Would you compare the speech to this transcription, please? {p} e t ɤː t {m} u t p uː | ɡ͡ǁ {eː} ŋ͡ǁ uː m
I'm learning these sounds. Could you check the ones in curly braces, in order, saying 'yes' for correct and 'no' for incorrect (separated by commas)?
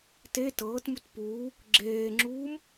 no, yes, yes